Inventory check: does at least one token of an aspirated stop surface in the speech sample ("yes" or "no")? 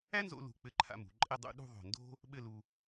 yes